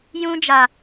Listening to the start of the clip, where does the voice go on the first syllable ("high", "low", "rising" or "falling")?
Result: high